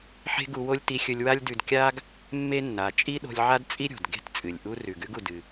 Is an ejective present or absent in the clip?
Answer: present